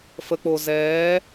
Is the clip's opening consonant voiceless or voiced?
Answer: voiceless